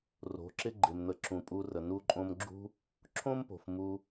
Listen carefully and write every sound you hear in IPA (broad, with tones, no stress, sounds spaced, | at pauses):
r o̤˨˦ ǁ ɪ˦ ɡ͡ǃ ɪ˨ m n̪ ə˨ ǁ ũ˨ pʼ u˧ r ə˨ n u˧ ǃʼ õ˧ m ɡ͡ǁ ṳ˦ | ǁʰ õ˦ m p o̤˨ f m u˧